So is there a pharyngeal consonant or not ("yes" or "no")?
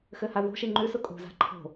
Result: no